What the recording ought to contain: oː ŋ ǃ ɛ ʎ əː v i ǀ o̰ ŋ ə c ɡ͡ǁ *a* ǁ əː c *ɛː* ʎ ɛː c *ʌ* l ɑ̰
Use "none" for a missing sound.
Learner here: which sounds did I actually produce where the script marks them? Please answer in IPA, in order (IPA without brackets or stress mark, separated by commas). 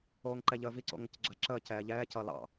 a, ɛː, ʌ